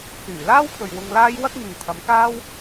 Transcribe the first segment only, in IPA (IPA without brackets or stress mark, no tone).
t͡s